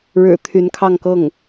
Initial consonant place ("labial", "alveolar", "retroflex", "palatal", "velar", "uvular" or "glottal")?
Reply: retroflex